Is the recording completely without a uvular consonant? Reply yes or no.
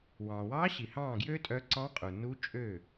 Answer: no